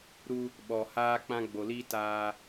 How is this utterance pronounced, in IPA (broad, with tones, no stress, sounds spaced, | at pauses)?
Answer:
ɾ u˦ | ɓ ɔ˨ h aː˦ k͡p ã˦ ɡ͡b o˨ l i˦ t aː˦